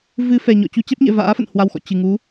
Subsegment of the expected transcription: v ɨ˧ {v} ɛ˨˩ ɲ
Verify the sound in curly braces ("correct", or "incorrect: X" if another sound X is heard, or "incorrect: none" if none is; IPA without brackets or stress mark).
incorrect: f